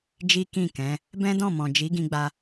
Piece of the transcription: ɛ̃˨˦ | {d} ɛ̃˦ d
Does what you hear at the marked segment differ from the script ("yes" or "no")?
yes